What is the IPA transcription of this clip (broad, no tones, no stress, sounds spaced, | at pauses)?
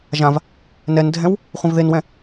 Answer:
ʒ ã v | n ɛ n dʱ ɛ̃ w | χʷ ĩ v ð e n w ɛ̃